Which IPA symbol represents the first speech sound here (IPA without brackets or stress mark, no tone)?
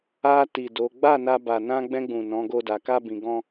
a